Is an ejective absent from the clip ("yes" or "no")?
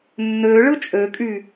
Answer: no